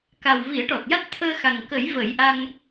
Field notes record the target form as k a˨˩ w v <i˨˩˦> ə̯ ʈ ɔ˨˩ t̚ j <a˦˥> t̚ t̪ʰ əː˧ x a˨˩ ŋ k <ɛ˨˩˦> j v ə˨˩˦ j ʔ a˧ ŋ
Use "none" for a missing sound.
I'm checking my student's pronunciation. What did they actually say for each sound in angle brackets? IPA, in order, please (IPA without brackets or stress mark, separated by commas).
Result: i˨˩˦, a˦˥, ə˨˩˦